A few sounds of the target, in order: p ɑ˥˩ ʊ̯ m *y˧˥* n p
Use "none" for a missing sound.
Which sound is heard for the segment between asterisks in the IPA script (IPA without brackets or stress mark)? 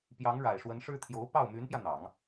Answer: y˧˥